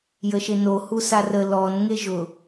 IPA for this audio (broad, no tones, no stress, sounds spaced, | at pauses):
j ə ʃ e n o h u s a r ə l ɔ n ŋ e ʒ ʊ